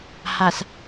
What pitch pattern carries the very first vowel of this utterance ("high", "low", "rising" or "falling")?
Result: low